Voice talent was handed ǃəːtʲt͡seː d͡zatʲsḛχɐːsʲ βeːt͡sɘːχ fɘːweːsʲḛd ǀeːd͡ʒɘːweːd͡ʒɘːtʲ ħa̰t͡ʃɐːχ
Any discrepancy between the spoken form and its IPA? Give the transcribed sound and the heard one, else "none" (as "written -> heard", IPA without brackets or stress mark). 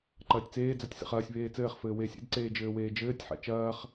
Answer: əː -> ɐː